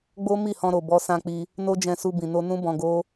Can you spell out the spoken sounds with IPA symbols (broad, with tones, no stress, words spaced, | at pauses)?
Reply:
ɡ͡bo˦ mi˦˨hɔ̃˧ɾo˨ bɔ˧sã˧k͡pi˧ | no˦d͡ʒɛ̃˧su˧ bĩ˨no˧ nũ˦bɔ̃˧ɡo˦